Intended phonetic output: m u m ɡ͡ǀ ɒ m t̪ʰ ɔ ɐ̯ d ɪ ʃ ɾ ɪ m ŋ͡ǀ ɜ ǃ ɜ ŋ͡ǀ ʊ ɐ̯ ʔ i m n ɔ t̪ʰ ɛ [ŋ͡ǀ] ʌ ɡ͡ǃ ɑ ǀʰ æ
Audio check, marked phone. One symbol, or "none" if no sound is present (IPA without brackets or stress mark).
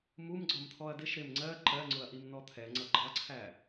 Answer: ŋ͡ǀ